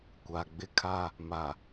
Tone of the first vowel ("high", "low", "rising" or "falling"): low